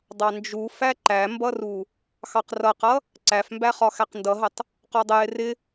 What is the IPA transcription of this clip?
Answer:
dˤɑnd͡ʒu fæǃæmbʌru | xɑqrʌqʌ | ǀæfmbæχɒ xæqndʌɦətˤ | qɔdˤəjɪ rɪ

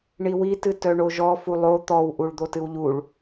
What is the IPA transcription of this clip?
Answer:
ɳiwitɨ tœɳoʒɔ fulˠo t̪ɔwʔuɭ d̪otɨwʎuɭ

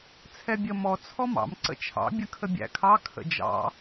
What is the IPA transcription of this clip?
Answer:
t͡sʰɛbʲə mɔ t͡sʰɔmɑ̰m ǀə̰t͡ʃʰɑ̰ bʲəkʰəbʲæ̰kʰɑ kʰə̰d͡ʒɑ̰

